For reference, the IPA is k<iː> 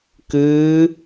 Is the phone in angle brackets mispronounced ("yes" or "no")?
yes